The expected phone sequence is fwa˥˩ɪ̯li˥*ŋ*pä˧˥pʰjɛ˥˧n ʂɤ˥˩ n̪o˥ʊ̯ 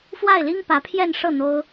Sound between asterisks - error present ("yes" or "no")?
no